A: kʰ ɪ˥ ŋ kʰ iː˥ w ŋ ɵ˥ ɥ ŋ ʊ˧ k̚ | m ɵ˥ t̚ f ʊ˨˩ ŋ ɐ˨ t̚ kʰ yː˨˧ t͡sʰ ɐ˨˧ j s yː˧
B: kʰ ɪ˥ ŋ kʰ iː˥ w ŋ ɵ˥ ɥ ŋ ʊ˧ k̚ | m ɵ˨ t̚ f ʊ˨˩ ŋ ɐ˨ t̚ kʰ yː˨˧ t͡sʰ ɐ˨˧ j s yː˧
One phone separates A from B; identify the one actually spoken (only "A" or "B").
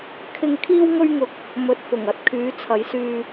B